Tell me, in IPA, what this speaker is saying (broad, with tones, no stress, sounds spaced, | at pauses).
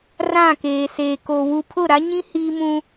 r ã˦˨ k eː˨ s eː˨ k o˨ w u˨ pʰ ʊ˦˨ ɾ a˦ ɲ ĩ˦ h iː˦ m ũ˦